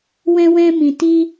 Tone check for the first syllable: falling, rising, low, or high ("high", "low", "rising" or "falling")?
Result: high